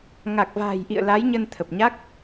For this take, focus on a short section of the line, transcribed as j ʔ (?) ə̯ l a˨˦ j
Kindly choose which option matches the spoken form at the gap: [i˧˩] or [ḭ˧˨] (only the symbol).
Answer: ḭ˧˨